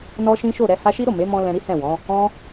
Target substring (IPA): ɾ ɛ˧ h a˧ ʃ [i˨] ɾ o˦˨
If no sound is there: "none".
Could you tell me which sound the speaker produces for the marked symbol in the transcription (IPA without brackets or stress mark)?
i˦